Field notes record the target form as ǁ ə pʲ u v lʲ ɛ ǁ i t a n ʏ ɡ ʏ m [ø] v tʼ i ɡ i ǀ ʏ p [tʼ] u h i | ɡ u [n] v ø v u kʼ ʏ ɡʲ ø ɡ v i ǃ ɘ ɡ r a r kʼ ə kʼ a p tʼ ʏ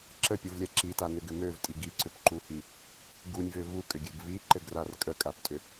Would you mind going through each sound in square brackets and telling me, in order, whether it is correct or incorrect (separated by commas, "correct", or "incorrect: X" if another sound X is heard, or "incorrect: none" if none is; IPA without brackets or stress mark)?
correct, incorrect: ǃ, incorrect: nʲ